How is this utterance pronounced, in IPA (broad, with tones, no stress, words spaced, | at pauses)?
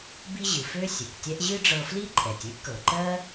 bi˥ʑɨ˩fø˥ sʲɨ˩ktʲɛ˥ʔ ʑɨ˥ɖ͡ʐɤ˧fli˥ǃʼɛ˩tʲ ɨ˥ʔkɤ˩ǃɜ˥